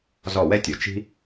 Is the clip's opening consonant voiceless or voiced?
voiced